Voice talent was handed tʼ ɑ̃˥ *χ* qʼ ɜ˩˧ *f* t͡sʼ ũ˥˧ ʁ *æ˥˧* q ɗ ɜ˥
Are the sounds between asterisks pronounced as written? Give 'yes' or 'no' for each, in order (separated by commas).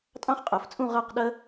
yes, yes, no